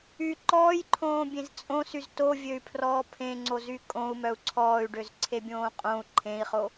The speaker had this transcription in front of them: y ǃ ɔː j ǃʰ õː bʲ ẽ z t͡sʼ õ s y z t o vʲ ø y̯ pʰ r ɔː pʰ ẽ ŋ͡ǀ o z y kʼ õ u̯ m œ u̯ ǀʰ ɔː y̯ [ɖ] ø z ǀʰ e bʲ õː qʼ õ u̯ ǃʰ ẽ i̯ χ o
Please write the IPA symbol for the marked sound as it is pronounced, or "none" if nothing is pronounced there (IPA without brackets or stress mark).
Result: ɖ